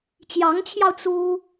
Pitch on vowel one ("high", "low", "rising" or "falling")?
rising